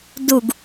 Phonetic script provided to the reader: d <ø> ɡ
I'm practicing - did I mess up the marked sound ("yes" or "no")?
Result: yes